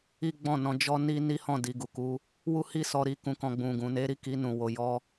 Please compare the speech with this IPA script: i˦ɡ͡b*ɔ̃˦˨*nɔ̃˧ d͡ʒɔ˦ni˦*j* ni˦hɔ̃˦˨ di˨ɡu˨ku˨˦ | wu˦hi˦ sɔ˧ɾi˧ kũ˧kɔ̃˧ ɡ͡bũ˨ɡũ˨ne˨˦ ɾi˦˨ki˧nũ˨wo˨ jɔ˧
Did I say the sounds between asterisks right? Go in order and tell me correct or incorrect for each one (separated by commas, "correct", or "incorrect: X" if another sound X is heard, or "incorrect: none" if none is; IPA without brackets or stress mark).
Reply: correct, incorrect: none